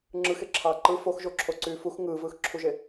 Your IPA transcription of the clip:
ŋ͡ǁɯxeǁʰɑː ǃɯ foxʒoǁʰoǀyː fux ŋɯːvɯːxǁʰuʒe

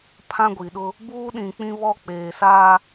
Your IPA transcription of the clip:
pʰã˦ɡʷi˨ɗʊ˦ | buː˦ɗĩ˨k͡pĩ˦βɔ˦ k͡peː˨saː˦

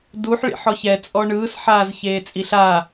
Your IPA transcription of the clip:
duħ ɭḭħɔçɛ t͡sʼɔɳɯːs ħaːzçeːt͡sʼiɬa

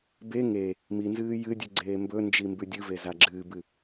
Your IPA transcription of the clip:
be ŋe | minzɨː jɨdʲʉ ɡ͡ǀeːmbɵnd͡ʒi mbʉdʲɨve zaɡ͡ǁɨːbɨ

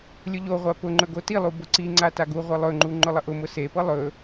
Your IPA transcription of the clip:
lʲʊʎoʁʷa pʊŋ͡ǃɵ ɡotilˠu bʊǀiŋ͡ǀa taɡuʁʷe lˠɵŋ͡ǃu ŋ͡ǃʊlˠəʔʊmʊ sepɤ lˠɵ

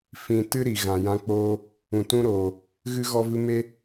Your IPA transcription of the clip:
fĩ˨tɨ˦ ɾi˨ɣã˨jã˧k͡poː˦ | ũ˨tũ˦ɾoː˨ | ɣɨ˦ɣɔ˦vɨ˦ me˦

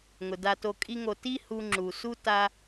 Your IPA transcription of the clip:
ŋʊ˩da˧to˧ kʼi˥ŋo˧ ti˥ hu˧ŋ͡ǁu˩su˥ ta˥

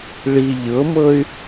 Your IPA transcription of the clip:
ɭi ʎɤmɤy̯

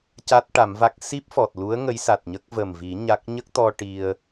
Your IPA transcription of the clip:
ca˦˥t̚ʈa˨˩˦mva˦˥k̚ si˦˥p̚ fɔ˨˩t̚lu˧˥ə̯ ŋə˧˥jsa˨˩t̚ɲə˦˥k̚ və˨˩mvi˨˩˦ ɲa˦˥k̚ ɲə˦˥k̚t̪ɔ˧ ʈi˧ə̯

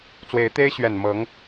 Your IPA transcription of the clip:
t͡swe˧˥ɪ̯t̪e˥ɪ̯ ɕɥɛ˨˩nmɤ˧˥ŋ

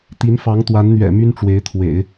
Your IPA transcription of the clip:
t̪i˧˥n fɑ˧˥ŋt̪wa˧˥nn̪ɥɛ̰˨˩ my˥nʈ͡ʂwe˧˥ɪ̯t̪ʰwḛ˨˩˦ɪ̯

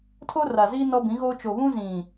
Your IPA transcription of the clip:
tʰo˦ra˨zi˦ nɔ˦bĩ˨˦ɣoː˦ t͡ʃo˨βũ˦zĩ˨

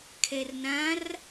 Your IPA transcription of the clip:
kʰɛrnãr

